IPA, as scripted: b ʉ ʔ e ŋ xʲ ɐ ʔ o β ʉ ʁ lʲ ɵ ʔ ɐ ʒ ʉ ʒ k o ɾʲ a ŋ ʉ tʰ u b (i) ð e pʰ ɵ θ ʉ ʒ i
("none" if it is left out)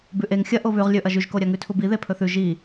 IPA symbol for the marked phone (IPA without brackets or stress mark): i